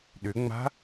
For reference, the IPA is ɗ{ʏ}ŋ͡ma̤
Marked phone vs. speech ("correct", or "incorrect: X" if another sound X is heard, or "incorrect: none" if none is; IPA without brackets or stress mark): correct